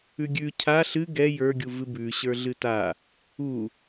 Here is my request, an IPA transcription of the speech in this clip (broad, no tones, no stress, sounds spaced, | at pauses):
ʉ ɡʲ ʉ cʰ a ɬ ɨ ɡ ɛ j ə˞ ɡʲ u v ɨ b ʉ ɕ ə˞ ɮ ɨ t a | u